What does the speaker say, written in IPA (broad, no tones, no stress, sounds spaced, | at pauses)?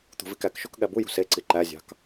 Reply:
t̪ ṳ v i k æ k ʃ o k ɠ æ b u j ṳ s e ǀ i ǃ æ zʲ ɑ̤ k